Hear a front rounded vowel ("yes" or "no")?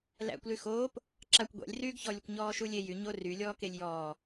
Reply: yes